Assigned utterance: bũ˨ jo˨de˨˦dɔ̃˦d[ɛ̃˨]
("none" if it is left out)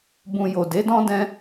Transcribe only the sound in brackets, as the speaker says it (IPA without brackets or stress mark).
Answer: ɛ̃˦